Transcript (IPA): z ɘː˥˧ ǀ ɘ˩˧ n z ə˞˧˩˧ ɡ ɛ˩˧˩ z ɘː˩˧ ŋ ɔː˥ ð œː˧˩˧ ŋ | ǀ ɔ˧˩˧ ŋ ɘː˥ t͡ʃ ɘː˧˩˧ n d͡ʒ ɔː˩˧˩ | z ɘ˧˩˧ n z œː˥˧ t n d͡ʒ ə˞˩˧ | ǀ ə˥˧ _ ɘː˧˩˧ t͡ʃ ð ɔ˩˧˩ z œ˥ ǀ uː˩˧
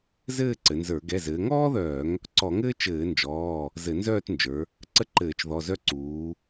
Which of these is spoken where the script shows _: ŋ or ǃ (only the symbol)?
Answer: ǃ